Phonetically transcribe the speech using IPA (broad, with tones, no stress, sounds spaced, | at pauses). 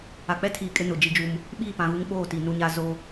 a˨ k͡p ɛ˦ tʰ iː˨ kʼ ɪ˦ n ʊ˨ d͡ʒ i˦ d͡ʒ u˦ m | ɓ iː˦˨ p ã˨ ɣ u˦ ŋ ɓ oː˦˨ t i˨ n u˦ ɲ a˦ z o˦